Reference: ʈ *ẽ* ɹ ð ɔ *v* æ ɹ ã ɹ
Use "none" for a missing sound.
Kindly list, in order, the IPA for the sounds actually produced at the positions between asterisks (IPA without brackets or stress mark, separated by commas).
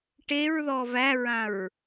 e, v